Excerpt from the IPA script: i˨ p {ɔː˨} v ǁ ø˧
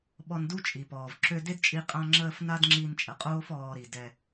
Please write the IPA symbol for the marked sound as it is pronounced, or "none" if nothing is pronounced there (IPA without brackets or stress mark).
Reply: ɔː˨